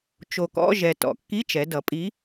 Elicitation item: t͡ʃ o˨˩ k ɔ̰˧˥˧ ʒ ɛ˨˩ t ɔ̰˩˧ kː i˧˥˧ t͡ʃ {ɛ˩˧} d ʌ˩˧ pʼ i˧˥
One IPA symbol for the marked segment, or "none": ɛ˩˧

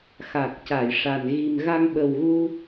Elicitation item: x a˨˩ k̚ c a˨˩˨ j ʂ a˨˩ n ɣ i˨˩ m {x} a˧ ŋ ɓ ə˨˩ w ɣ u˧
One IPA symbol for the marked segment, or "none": ɣ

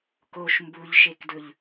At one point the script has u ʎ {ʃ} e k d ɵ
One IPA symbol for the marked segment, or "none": ʃ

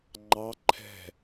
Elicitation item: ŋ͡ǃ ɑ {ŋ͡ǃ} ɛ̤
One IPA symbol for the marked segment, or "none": ǃʰ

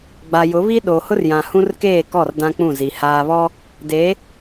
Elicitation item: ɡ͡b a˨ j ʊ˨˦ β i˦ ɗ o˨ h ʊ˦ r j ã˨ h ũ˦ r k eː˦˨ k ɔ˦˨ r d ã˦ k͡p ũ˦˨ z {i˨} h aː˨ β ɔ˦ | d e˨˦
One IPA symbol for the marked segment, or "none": i˨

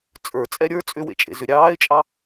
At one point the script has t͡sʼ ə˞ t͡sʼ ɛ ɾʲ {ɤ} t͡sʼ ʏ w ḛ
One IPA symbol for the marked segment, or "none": ə˞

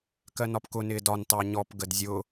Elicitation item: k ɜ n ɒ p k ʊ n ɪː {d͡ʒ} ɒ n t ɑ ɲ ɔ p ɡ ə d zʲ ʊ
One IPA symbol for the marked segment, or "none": d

